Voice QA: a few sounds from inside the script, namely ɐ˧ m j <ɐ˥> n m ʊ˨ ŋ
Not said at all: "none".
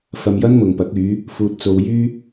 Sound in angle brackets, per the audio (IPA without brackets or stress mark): ɐ˥